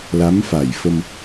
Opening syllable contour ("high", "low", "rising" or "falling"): rising